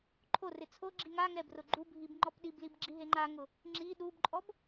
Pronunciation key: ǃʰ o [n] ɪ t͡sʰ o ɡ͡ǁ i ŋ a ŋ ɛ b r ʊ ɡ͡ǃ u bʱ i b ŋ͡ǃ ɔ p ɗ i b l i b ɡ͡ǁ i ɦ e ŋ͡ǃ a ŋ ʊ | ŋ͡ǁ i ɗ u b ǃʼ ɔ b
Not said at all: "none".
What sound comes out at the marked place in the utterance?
r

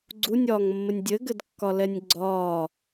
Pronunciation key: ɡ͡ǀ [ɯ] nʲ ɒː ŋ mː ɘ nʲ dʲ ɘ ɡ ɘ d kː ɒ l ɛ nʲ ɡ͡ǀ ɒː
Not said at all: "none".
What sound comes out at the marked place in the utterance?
u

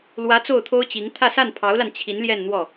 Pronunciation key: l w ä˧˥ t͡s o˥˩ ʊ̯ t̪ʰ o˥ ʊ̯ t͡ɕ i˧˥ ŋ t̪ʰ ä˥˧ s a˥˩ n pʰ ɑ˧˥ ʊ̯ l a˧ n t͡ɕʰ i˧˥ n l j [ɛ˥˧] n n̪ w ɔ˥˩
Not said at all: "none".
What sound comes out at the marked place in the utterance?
ɛ˥˧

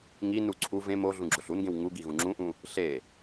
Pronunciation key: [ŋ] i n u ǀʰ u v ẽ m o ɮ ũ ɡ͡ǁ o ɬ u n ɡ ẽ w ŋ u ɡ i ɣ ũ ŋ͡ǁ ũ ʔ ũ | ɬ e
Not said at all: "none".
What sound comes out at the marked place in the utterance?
ŋ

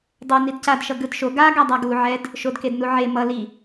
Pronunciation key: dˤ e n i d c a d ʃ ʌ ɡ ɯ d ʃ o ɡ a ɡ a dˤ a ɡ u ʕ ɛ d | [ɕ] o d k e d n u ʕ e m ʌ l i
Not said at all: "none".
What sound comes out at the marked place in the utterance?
ʃ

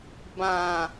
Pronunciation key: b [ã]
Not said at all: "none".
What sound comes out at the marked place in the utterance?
ã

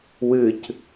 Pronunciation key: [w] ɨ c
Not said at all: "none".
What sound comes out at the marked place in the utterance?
w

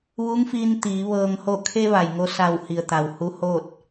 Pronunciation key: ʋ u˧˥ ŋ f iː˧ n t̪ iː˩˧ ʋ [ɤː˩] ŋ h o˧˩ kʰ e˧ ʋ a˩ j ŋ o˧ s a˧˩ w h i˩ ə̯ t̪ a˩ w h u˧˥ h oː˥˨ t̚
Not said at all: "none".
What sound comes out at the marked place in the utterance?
ɤː˩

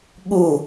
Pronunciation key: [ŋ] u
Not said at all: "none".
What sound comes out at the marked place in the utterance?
ɠ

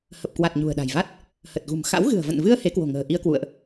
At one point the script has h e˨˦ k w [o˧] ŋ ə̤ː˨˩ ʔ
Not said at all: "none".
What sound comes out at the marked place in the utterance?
o̤˨˩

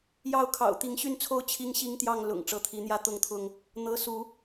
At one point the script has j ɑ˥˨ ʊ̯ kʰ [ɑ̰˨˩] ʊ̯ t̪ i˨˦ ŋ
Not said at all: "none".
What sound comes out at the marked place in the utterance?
ɑ̰˨˩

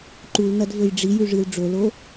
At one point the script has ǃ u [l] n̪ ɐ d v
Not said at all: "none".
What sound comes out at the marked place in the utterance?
l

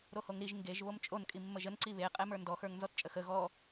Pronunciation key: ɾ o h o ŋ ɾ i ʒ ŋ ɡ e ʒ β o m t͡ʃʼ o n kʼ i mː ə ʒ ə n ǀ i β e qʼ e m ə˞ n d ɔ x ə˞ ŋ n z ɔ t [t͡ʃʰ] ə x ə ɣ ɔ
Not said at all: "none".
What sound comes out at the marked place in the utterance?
t͡ʃʼ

